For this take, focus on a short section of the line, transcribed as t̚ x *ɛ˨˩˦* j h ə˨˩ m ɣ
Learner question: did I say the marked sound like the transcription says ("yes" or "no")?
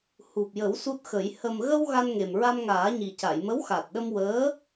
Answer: no